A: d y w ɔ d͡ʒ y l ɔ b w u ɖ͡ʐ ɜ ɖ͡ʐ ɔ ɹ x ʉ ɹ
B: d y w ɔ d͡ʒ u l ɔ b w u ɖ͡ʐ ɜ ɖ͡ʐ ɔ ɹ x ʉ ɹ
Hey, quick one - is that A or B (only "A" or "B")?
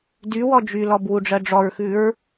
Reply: A